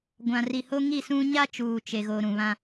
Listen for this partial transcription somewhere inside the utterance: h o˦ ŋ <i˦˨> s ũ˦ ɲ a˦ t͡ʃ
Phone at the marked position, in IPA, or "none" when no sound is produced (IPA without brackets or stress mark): i˦˨